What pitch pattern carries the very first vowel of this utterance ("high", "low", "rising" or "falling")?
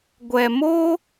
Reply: low